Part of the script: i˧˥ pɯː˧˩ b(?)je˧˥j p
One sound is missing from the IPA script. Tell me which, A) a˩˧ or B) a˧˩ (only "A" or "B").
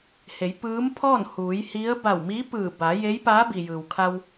A